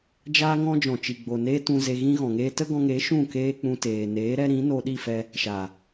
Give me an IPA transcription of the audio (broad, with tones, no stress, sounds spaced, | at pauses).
d͡ʒ aː˦ ŋ ɔ̃˦ d͡ʒ ɔ̃˨ t͡ʃ i˨ ɡ͡b o˨ n eː˦ t ũ˧ z e˧ ɣ ĩ˦ ɣ ɔ̃˨ ŋ eː˦ t ə˦ ɡ ɔ̃˧ ŋ e˨˦ ʃ ũ˦˨ k eː˦ k͡p ũ˧ t eː˨ n eː˨˦ ɾ ɛ˦ ɾ ĩ˨˦ n o˧ ɗ i˦˨ f ɛ˧ | ʃ a˨